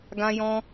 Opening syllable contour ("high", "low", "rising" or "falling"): high